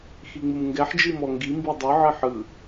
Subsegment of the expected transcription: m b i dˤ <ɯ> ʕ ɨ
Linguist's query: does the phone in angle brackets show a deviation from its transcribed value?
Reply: no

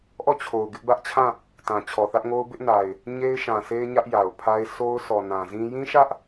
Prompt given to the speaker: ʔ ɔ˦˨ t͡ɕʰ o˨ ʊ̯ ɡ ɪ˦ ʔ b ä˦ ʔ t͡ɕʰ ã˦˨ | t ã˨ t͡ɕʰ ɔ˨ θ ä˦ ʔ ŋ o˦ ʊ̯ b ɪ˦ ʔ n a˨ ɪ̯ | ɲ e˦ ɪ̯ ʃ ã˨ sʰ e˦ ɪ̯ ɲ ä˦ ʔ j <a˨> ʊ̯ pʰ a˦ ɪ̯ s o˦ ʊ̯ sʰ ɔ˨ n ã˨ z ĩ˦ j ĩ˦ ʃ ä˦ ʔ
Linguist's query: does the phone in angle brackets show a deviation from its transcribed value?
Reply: no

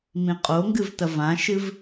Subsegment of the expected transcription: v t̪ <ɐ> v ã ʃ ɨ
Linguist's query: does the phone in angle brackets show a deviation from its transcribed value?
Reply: no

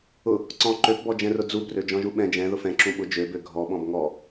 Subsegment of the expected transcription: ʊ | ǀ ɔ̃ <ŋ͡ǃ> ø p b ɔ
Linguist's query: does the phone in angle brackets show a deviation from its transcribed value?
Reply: yes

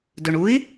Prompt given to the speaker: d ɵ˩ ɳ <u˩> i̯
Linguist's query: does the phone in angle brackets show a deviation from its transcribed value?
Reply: yes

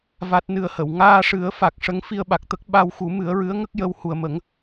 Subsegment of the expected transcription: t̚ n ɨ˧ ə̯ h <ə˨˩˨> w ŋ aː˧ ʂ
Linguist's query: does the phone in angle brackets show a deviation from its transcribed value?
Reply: no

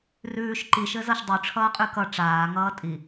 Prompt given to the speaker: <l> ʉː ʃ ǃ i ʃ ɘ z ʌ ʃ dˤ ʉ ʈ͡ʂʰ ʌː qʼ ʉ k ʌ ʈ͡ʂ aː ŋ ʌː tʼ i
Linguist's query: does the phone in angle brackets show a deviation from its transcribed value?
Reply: yes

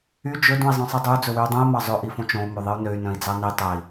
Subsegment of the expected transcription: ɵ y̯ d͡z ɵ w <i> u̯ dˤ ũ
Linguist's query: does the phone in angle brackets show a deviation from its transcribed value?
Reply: yes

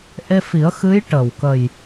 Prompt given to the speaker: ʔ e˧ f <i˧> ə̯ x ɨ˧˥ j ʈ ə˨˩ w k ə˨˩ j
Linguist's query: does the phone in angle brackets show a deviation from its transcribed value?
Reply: yes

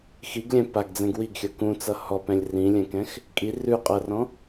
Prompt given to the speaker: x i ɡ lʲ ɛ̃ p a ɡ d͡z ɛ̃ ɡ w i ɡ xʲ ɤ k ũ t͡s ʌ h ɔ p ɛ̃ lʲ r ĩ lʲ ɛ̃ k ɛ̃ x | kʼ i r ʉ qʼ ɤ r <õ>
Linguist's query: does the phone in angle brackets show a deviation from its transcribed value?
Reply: yes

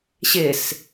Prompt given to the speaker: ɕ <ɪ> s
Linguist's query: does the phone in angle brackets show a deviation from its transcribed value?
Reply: no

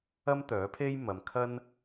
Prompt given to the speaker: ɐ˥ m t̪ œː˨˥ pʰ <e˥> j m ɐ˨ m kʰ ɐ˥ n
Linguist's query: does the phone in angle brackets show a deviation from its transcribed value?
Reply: no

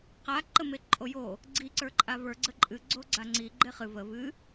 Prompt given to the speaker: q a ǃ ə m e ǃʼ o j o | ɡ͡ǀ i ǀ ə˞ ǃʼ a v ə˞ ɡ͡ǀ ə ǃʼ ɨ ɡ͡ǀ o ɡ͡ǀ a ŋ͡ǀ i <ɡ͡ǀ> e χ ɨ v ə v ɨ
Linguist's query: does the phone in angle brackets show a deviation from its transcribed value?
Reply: yes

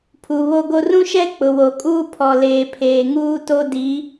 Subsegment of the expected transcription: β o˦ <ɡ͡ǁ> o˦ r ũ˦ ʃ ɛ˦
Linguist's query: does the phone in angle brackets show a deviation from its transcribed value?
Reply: yes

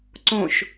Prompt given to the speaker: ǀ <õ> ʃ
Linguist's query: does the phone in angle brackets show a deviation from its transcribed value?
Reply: no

